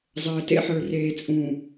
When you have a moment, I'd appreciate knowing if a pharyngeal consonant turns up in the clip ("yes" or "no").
yes